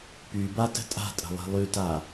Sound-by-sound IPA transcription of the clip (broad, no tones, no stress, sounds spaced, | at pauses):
p y b a t ə̤ tʼ a̤ tʼ ə̤ lˠ i̤ lˠ y t a